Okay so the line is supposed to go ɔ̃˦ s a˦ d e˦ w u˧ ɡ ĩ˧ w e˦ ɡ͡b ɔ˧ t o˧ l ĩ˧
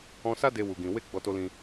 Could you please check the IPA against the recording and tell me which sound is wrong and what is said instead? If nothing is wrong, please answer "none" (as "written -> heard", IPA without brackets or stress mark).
none